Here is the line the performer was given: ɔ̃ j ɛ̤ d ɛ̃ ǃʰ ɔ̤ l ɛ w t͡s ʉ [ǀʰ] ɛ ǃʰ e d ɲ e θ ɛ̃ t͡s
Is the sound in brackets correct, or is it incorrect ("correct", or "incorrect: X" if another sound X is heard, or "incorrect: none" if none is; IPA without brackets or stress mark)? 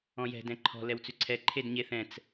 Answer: correct